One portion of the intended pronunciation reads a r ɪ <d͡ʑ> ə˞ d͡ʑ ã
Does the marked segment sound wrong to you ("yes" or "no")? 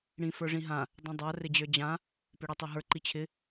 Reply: no